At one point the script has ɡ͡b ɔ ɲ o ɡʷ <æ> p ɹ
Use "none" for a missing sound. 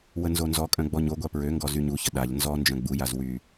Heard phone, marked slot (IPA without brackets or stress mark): a